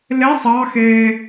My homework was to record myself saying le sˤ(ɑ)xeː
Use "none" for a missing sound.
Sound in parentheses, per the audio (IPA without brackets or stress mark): ɑ